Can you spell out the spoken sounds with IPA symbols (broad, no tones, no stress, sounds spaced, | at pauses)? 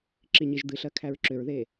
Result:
ǁ i ɲ i ʒ d̪ ɨ ɬ ɜ kʰ æ ɹ ǁ ʏ ɹ ð e